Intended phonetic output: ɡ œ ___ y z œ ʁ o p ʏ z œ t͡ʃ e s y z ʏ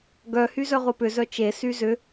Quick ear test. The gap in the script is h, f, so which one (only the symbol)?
h